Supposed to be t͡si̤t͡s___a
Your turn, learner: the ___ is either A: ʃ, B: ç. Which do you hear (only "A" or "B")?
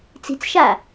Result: A